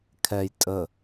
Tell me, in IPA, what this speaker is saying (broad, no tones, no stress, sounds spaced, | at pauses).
kʰ ɛ j tʼ ə